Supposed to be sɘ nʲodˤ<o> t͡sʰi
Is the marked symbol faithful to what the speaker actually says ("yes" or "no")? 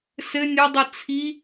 yes